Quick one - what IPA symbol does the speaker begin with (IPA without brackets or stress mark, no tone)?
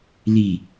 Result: l